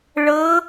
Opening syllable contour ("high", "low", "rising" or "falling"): rising